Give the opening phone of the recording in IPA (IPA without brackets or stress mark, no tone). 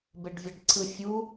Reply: b